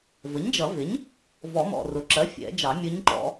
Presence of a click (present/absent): present